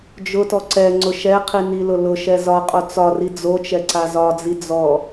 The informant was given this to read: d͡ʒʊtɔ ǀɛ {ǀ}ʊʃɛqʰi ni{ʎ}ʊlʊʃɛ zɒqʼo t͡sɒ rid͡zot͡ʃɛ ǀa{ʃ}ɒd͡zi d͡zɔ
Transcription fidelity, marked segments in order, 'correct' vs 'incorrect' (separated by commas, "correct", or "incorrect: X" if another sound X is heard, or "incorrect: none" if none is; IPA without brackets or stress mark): incorrect: ŋ͡ǀ, incorrect: l, incorrect: z